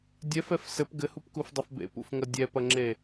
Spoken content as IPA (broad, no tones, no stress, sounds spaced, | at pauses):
dʲ ɛ f ɛ f s ɘ p ɡ ɘ h u p k u f dˤ ɐ f b ḛ p ṵ f ŋ ɐ dʲ ɛ p ɐ ŋ͡ǁ e